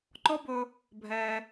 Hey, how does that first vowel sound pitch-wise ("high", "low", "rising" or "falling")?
high